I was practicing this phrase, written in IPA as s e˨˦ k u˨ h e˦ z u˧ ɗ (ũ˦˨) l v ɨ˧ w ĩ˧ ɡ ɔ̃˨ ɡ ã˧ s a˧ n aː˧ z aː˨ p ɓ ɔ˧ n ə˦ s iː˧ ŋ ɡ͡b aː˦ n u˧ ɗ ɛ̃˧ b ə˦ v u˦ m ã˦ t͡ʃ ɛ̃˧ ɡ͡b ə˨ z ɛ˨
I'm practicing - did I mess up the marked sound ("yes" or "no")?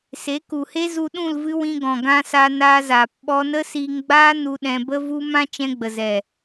no